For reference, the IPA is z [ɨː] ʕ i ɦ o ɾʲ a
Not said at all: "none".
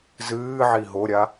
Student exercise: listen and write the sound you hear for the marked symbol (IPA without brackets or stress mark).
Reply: ɨː